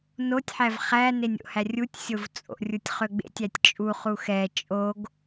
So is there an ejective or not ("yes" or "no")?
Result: yes